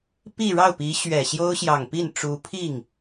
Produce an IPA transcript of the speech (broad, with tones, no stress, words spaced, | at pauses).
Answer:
pi˥˧ɻɑ˥˩ʊ̯pi˧˥ ɕɥɛ˨˩ɕjo˥ʊ̯ ɕjɑ˨˩ŋpi˥˩n ʈ͡ʂu˧˥pʰi˥˩ŋ